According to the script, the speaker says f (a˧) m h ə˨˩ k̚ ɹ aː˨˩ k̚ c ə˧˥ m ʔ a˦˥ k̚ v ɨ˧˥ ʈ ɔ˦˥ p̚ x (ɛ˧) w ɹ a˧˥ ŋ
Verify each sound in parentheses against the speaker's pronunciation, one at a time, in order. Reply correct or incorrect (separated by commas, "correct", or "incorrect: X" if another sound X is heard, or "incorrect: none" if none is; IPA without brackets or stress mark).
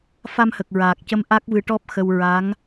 correct, incorrect: ə˧